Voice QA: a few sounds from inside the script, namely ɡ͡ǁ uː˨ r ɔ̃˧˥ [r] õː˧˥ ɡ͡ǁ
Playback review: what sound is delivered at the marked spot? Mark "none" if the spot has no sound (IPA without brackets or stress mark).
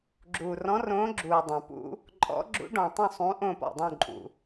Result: r